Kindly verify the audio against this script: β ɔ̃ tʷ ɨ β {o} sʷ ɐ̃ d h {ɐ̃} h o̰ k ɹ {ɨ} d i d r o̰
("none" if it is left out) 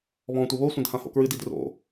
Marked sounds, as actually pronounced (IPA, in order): o, ã, ɨ

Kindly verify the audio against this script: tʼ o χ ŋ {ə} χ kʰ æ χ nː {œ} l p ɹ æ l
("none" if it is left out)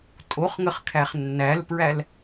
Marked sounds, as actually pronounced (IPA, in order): ə, æ

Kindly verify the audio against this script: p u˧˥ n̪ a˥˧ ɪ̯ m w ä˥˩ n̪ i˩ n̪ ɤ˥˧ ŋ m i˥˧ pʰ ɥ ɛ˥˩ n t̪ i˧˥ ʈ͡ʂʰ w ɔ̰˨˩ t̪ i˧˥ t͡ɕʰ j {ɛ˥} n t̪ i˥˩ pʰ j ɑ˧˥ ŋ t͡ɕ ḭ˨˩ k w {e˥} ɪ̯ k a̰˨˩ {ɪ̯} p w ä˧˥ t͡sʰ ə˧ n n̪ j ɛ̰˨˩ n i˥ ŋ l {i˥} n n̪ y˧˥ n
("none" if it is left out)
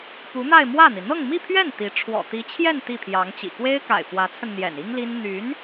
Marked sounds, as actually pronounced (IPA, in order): ɛ˥˧, e˥, ɪ̯, i˥

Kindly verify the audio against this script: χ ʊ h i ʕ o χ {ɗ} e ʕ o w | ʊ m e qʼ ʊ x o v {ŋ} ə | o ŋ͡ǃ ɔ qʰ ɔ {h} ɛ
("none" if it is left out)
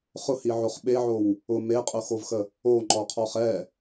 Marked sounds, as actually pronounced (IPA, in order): ɓ, x, χ

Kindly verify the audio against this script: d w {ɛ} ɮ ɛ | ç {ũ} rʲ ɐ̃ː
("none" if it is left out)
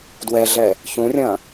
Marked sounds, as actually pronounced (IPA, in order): ɛ, ũ

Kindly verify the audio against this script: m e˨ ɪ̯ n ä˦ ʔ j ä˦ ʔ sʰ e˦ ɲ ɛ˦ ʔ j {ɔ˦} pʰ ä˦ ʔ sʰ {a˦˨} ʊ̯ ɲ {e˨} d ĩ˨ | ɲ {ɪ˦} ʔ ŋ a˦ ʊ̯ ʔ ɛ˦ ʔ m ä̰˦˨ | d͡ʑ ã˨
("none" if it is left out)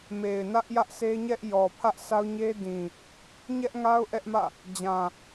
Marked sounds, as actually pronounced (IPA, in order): ɔ˨, a˦, e˦, ɛ˦

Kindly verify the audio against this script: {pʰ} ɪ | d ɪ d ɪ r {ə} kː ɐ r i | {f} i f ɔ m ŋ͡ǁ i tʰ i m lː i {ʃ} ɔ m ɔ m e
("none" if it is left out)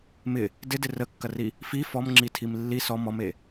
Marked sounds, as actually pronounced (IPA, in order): m, ə, f, s

